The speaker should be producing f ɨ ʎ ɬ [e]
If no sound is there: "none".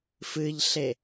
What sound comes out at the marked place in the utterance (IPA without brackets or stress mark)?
e